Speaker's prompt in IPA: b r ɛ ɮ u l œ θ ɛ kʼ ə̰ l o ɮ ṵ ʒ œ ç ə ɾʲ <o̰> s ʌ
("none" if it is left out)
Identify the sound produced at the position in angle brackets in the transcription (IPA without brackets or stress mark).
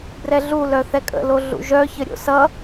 o̰